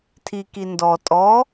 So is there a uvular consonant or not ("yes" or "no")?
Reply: no